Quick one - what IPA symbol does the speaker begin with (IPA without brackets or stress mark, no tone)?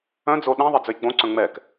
œ̃